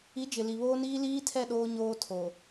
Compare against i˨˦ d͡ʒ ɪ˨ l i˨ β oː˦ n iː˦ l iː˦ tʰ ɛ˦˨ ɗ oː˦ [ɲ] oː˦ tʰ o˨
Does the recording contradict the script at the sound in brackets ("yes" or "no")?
no